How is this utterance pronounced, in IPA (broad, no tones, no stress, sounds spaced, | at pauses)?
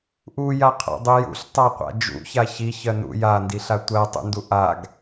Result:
ʔ u j a qʰ a̰ dˤ u j ṵ ɬ tˤ a qʷ a̰ d͡ʒ ṵ ç a ç i ç ɜ n ṵ j a n d i ɬ a tʷ ɜ tˤ ṵ n d u ʔ a ɡ